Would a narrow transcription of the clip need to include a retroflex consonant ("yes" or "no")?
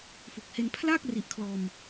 no